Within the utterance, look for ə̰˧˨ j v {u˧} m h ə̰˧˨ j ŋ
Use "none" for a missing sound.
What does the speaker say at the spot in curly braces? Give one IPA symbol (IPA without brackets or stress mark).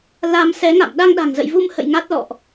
u˧